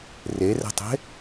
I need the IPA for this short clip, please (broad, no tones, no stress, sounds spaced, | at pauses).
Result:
r e r ɛ̤ tˤ e̤